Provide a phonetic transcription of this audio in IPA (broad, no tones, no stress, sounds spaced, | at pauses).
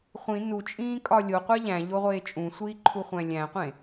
χʷ ĩ n u t͡ʃʼ ĩː kʼ ɒ lʲ o qʷ æ ʎ æ̃ ʎ o ʁʷ eː t͡ʃʼ ũ sʷ iː ǃʰ u χʷ æ̃ lʲ æ̃ qʷ ẽ